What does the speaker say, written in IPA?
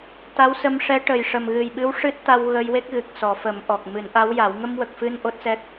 t̪ a˧˥ w s ə˧ m ʂ ɛ˧˥ ʈ ə˨˩ j ʂ ə˨˩ m ɣ ɨ˨˩ j ɓ ɨ˧˥ w ʂ ɨ˦˥ t̚ t̪ a˧ w ɣ ə˧ j w e˦˥ k̚ ɣ ɨ˨˩ k̚ s ɔ˨˩˦ f ə˨˩˦ m ʔ ɔ˨˩ k̚ m ɨ˨˩˦ n ʔ a˧˥ w j a˨˩˦ w ŋ ə˧ m w ə˨˩ k̚ f ɨ˧ n ʔ o˦˥ t̚ s ɛ˦˥ k̚

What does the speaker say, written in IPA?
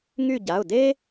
ŋ y˦˨ ɟ a˩˧˩ ʊ̯ d eː˥

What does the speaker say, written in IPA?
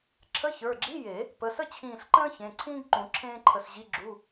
ǁʰ ə˧˥˧ ç ə˞˩˧˩ ɡ͡ǁ i˧˥˧ j e˨˩˦ | p ə˩˧˩ s ə˥ t͡ɕʰ ĩː˧˩ ɬ ǃ ə̃ː˥ ç ẽ˩˧˩ ǀʰ ĩː˥ ɡ ǃ ũ˨˩˦ ǁʰ ẽː˥ ǃʰ ə˧˩ s ʑ i˧˥˧ ɡ͡ǁ u˧˥˧

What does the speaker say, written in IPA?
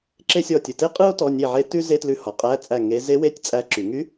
ǁ e˥ sʲ ɔ˥˨ tʲ ɯ˧˩ t e˥ qʼ ɯ˥ o̯ t ɔ˧˥˧ nʲ e˥˨ ʕ e˥ t ʉ˥ z e˧˥˧ t l ʉ˧˥˧ h ɔ˨˩˦ qʼ æ˧˥˧ t͡sʼ æ˥˨ ŋ e˧˥ z e˧˥ w e˧˥˧ tʲ t͡sʼ æ˧˥ ǁ y˨˩˦ ŋ y˧˥

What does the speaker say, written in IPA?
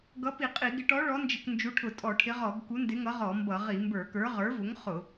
ɡ ʌ˨˥ p i˧˩˧ qʼ i˧˩˧ ɡ ɪ˨˥ ʈ ɔ˨˥ ɭ ɔ˨˥ n d͡ʒ ɪ˧˩˧ k n d͡ʒ u˨˥ ʈʰ ʊ˧˩˧ tʼ ɔ˧˩˧ ʈʰ ɪ˨˥ ʁ ɔ˧˩˧ ɡ k u˨˥ n d ɪ˨˥ ŋ ʌ˨˥ ʁ ɔ˧˩˧ m b ʌ˧˩˧ ʁ i˧˩˧ m b ə˞˧˩˧ k ə˞˨˥ ʁ ə˞˨˥ v ʊ˨˥ ŋ χ ʊ˧˩˧

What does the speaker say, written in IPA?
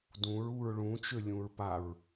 d ũ ɹ u ɹ ɭ ũ t͡ʃ ø lʲ ũ ɹ p a ɹ

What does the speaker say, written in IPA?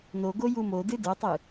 n o ɡ o j u m o d ɨ d ə˞ tˤ ɨ

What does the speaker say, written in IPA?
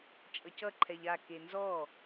t͡ʃʼ ʌ c ʌ ǃʰ ɛ ʎ a k e n z ɔ

